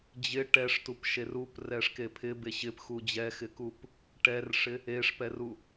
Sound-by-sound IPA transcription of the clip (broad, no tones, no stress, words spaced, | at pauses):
d͡ʑɪ ʈɛʂtupʃer uprɛʂke pʰɪbe ɕɪpxu d͡ʑɛxɪkup | ʈɛrʂɪ | eʂpɛru